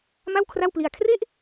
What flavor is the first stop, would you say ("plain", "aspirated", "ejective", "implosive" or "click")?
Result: aspirated